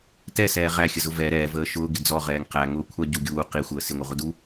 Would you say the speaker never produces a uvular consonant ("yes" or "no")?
no